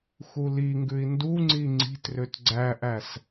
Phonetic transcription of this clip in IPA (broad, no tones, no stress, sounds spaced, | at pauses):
x u l i ŋ ɡ ʉ i̯ n d u ŋ͡ǀ i ŋ͡ǀ i̤ t r ø t ɡ͡ǀ æ ʔ æ s